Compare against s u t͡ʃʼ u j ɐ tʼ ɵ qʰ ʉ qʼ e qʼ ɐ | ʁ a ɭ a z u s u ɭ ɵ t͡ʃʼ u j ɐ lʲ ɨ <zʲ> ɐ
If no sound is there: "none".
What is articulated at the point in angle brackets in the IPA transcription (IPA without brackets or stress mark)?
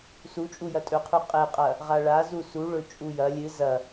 z